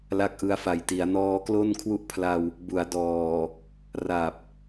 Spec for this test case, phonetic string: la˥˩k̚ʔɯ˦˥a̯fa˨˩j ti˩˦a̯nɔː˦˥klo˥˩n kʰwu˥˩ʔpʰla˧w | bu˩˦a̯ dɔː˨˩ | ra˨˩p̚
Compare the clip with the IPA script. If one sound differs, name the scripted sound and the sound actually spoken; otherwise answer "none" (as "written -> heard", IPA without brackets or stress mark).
none